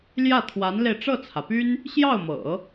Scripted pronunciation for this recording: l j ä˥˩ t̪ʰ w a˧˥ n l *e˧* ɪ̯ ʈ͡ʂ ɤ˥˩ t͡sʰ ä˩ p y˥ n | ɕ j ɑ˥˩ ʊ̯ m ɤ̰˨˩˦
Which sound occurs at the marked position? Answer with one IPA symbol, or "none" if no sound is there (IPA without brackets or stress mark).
e˧